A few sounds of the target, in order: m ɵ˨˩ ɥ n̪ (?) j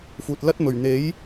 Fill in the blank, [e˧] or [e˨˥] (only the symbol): e˨˥